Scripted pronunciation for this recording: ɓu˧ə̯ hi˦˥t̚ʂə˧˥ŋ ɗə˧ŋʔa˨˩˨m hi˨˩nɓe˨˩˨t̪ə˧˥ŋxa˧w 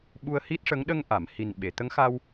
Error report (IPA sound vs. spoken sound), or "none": none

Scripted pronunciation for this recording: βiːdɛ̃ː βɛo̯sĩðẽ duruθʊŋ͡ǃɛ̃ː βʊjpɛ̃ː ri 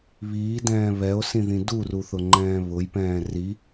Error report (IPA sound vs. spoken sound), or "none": ẽ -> ĩ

